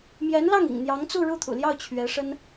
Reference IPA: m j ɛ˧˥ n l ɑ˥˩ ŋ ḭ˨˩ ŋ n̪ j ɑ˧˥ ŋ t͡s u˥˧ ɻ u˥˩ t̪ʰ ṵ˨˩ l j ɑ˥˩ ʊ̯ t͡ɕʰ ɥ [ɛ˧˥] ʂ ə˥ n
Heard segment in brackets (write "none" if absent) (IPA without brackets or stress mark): ɛ˧˥